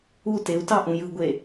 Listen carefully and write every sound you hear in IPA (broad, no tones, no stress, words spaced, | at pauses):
u teu̯tɑʔũ jɯɡʷe